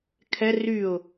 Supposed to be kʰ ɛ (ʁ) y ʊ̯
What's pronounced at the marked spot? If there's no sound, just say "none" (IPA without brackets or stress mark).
r